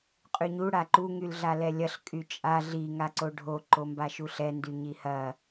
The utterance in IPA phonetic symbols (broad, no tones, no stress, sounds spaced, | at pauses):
qʼ y ɲ u ɽ a ǃ u ŋ y l ɮ a l ɛ lʲ ɐ ɬ kʼ y t͡ʃʼ a ɮ i ŋ a ǀ o ɖʱ o ǃ o m b a ʃ u ɬ ɛ n d y ɲ i h ɐ